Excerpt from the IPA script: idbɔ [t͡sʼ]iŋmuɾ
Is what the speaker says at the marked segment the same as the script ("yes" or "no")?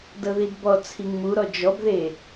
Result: no